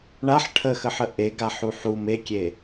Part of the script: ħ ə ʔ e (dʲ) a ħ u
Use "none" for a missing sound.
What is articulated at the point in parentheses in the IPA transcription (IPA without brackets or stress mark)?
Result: ɡ